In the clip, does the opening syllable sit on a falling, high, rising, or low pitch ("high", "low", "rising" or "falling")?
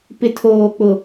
low